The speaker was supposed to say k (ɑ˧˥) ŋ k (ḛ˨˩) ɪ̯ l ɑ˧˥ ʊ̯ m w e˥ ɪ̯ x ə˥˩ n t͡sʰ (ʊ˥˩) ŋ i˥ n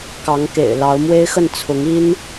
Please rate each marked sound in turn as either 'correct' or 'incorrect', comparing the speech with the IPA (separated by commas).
correct, correct, incorrect